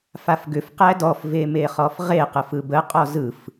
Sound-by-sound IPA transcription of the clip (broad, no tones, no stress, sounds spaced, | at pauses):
f a f ɡ ʏ f q æ d ɔ f v e m e χ ɔ f ʁ e q ə f ɯ b ə qʼ ɔ z ɯ f